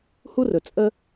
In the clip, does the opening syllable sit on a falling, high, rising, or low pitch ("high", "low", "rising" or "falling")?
high